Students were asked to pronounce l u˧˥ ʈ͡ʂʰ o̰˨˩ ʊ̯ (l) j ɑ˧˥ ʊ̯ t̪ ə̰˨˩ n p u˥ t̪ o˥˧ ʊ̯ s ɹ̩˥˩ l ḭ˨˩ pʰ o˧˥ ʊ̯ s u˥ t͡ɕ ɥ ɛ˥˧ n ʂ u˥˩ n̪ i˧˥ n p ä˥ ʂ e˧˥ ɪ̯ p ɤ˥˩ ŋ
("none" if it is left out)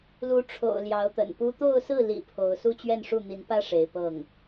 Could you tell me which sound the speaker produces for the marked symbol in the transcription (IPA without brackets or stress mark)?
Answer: l